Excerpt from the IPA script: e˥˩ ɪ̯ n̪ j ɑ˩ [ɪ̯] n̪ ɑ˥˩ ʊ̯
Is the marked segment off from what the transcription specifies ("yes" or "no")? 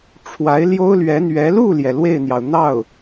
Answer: yes